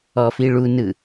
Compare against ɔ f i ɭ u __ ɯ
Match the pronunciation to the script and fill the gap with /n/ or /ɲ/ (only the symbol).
n